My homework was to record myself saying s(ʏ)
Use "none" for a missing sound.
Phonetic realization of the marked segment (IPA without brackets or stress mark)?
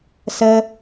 ə